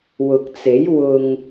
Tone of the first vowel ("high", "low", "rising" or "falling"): low